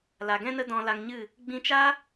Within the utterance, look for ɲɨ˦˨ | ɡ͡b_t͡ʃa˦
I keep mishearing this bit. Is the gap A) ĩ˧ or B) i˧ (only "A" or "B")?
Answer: A